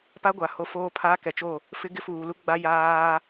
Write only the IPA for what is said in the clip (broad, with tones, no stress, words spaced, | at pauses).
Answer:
pa˦ ɡʷa˨ho˦foː˦ pʰaː˦kɛ˨t͡ʃo˦˨ | fɪ˦ ɡɪ˦fuː˨lu˦ɡ͡ba˦ jaː˦